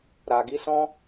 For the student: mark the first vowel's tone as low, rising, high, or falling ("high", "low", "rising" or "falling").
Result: low